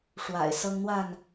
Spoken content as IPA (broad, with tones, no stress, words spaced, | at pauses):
ʂwa̰˨˩ɪ̯sɤ˦ŋn̪wa˥˨n